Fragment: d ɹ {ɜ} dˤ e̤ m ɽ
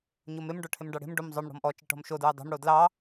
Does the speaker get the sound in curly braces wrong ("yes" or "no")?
yes